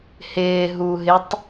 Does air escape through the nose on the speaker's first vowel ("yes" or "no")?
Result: no